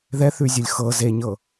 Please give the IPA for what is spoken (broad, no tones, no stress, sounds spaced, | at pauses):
ð ɛ θ ʉ zʲ ʊ lʲ x ɤ z e ɲ ɤ